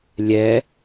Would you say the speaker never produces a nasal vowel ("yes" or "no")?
yes